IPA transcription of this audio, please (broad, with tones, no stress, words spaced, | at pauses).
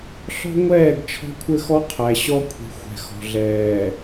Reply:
ɬɔ̤˦ŋʷɛː˦˨ɡ t͡ʃʰɔ̤˦kʷʰɘ˦xɔ˦ qʰæ˨ɕɔ˦kʷʰi̤˨ xʷɛ̤˨xɔ̤˨ɮɛː˨